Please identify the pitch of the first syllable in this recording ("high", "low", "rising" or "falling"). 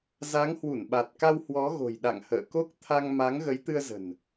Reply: rising